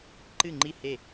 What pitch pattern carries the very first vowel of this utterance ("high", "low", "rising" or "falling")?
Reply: falling